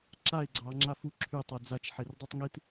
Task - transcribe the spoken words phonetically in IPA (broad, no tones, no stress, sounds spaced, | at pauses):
ǁ a ɪ̯ ɡ͡ǀ ɑ ŋ͡ǁ a f u ǁʰ y tˤ a d͡z a t͡ʃ ħ e r dˤ y tˤ ŋ i t